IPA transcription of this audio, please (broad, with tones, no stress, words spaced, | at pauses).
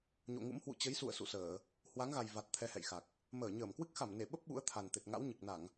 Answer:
ɲo̰˧˨ŋṵ˧˥m hwṵ˧˨t͡ɕə˨˦jsṵ˧˨ə̯ sṵ˧˨səː˧˩˨ | hwa˨˦ŋɣa˨˩j va˨˩t̚ t̪ʰɛ˧hɛ̰˧˨jxa˨˩k̚ | məː˧˩ɲəː˧˩mkwɨ˦˥k̚ xa˧˩mne˧˩ɓə˦˥p̚ ɓṵ˧˥ə̯t̪ʰa˨˩n t̪e˨˩t̚ŋa̰˧˥wɲɨ˨˩k̚na˧˩˨ŋ